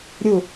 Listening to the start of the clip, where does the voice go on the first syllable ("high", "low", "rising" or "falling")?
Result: falling